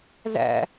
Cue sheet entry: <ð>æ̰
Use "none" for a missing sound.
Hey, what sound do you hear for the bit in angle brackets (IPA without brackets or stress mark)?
ð